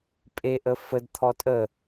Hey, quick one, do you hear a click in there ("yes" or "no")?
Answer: no